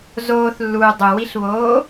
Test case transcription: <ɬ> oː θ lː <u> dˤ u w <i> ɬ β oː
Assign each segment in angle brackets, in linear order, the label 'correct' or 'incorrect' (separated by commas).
incorrect, incorrect, correct